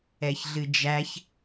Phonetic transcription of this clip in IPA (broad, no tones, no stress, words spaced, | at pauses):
ɛçɮɨd͡ʒæç